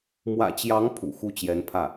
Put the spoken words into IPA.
mwä̰˨˩t͡ɕjɑ˧˥ŋ pʰṵ˨˩xu˥˩ t͡ɕjɛ˧˥npʰä˥˩

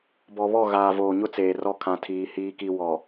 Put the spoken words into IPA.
bɔ˨βɔ˦˨ ɣaː˨voː˨ɲʊ˦ t͡seː˨rɔ˦ kʰã˨tʰiː˨ hiː˦ki˦ wɔ˨

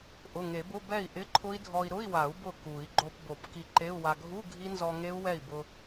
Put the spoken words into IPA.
ʔʊ˩˧˩ŋe˨˩˦bʊ˧˥˧ bɛ˥˩i̯ʔɪ˧˥˧ǃʰʊ˦˥i̯dʱɔ˧i̯ ɾʊ˧˥˧i̯wa˨˩˦u̯ bʊ˥˩ku˨˩˦i̯ ɡ͡ǃo˧p bo˨˩˦pki˧ǃe˧˥˧u̯wa˧ ɡʱu˧˥˧ ɡʱi˦˥nzɔ˧ŋe˦˥u̯ wɛ˥˩i̯bʊ˧

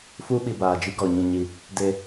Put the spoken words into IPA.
fu˦ɓi˨baː˨ d͡ʒi˦ɡɔ˨ɲĩ˦˨ɲi˦ | de˦

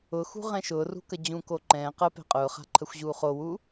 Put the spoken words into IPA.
ʊxṳ ʁɛ̃ʃʊːrṳ kəd͡ʑũ koǃɛ̃ː qə pɛ̤qʼʊːχa̤ ǃʰəxʷʑuːχowu

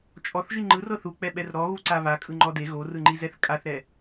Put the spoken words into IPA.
t͡ʃʼɔθʒi ŋ͡ǃɯrɤ θuk͡pɛɓɛr ɾɔɣuǀa βakʼɯŋ͡ǃɔ de ɣorɯŋ͡ǃizɛθ kʼaθɾɛ

